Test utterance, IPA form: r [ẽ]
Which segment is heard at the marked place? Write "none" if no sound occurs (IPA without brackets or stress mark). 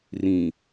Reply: ĩ